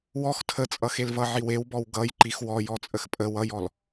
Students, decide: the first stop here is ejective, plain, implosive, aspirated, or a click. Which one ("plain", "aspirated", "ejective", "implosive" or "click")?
aspirated